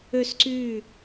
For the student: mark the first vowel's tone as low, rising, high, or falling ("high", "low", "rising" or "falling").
falling